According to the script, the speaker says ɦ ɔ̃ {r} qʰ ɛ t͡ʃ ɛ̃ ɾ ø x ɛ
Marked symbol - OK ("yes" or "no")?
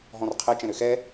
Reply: yes